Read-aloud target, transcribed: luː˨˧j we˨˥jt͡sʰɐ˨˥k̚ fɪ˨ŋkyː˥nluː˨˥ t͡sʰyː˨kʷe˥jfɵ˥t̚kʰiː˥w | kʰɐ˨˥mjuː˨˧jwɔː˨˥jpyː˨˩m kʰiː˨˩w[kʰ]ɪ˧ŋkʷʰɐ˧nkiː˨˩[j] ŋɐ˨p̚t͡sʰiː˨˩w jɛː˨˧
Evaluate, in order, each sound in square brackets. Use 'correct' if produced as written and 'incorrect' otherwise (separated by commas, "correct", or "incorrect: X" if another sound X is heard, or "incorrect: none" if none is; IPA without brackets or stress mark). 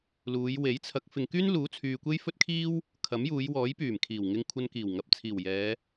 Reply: incorrect: ŋ, incorrect: w